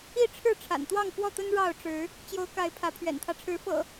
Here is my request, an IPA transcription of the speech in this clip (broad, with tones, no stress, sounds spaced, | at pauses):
i˥˨ ʈ͡ʂʰ ɻ̩˥˨ ʈ͡ʂʰ a̰˨˩ n t̪ w ɑ˥˨ ŋ f w ɔ˥˨ t̪ ə˦ n ɻ ɑ˥˨ ʊ̯ ʈ͡ʂ ɻ̩˨˦ | t͡ɕ j o˨˦ ʊ̯ k a˨˦ ɪ̯ pʰ ä˨˦ pʰ ɥ ɛ̰˨˩ n t̪ʰ ä˦ ʈ͡ʂʰ ɻ̩˨˦ f ɤ̰˨˩